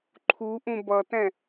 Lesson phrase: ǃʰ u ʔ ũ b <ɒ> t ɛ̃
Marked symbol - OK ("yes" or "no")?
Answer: no